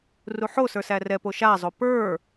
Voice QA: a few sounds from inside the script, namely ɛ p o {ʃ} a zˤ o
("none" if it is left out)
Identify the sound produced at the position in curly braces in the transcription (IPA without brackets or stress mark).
ʃ